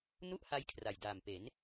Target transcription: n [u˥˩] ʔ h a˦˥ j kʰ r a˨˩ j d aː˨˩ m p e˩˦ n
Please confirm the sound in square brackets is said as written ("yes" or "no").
yes